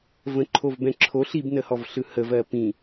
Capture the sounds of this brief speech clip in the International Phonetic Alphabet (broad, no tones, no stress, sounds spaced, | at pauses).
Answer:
v ə̃ ǃʰ o v b ɛ̃ ǁʰ o ɬ i b n ə h ɔ v ɬ ɯ h ə v ɜ p ĩ